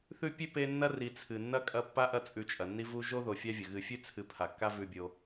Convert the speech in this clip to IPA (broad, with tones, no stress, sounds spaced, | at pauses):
θ ʉ˦ pʲ ʉ˥ p e˦ nː ɐ˥ r i˨ t͡sʰ ɨ˩ nː ɐ˥ kʼ ɐ˦ pː a˥ ʔ ɐ˦ t͡sʼ ʉ˨ t͡ʃʼ ɐ˩ nː i˦ v u˦ ʒ o˥ ð o˨ fʲ a˥ vʲ ɐ˩ ɣ ɨ˨ fʲ ʉ˥ t͡sʰ ɨ˨ pʰ a˩ kː a˦ v ʉ˨ bʲ o˨